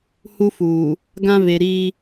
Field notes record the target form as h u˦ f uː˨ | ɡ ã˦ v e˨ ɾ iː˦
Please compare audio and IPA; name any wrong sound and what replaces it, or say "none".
none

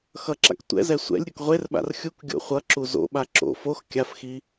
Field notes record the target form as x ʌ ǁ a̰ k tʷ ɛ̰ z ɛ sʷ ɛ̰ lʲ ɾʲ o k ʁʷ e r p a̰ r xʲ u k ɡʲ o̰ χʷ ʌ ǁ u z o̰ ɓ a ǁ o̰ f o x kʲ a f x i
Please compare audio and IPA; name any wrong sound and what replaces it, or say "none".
p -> ɓ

